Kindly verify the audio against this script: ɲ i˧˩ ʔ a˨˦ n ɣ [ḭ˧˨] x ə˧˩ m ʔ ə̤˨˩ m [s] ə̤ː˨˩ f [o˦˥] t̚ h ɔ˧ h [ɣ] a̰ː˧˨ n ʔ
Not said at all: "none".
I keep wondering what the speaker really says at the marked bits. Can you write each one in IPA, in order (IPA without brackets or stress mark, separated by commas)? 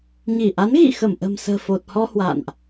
ḭ˧˨, s, o˨˩, w